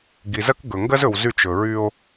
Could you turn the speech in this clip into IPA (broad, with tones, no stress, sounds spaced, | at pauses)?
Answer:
ɡ i˨ z ɐ˦ k ɡ ɵ˨ ŋ ɡ ɐ˦ z ɵ˨ w z y˦˨ t͡ʃ ɵ˨ ɹ y˦ o̯